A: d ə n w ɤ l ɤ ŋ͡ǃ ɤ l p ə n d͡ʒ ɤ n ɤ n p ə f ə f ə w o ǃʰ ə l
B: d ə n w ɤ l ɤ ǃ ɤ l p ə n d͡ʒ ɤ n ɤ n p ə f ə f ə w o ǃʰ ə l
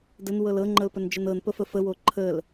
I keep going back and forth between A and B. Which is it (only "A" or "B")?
A